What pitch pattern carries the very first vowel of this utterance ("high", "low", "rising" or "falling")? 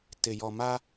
low